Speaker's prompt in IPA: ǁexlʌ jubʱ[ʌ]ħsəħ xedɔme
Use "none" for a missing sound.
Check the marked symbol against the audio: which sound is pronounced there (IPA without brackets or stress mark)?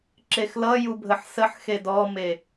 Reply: ə